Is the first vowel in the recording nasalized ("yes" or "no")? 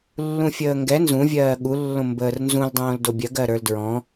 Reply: yes